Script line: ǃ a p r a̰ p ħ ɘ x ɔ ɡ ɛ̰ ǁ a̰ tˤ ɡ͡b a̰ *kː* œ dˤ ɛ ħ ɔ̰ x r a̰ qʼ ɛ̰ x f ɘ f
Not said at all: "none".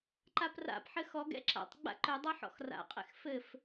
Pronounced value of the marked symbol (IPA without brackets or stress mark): ǃ